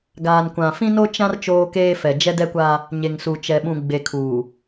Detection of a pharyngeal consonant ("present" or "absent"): absent